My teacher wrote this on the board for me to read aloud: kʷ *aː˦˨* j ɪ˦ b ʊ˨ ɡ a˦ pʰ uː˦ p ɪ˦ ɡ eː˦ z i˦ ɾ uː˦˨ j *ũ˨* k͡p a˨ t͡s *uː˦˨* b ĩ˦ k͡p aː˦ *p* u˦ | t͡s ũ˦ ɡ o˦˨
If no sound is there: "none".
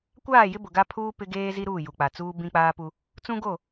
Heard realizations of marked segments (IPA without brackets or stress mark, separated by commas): aː˦˨, u˨, uː˦, p